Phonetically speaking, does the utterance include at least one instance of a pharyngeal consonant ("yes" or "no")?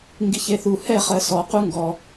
no